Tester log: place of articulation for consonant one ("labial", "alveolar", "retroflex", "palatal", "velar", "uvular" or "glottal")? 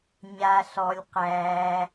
palatal